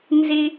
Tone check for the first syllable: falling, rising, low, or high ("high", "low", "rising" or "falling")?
high